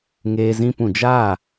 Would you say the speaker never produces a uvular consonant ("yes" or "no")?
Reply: yes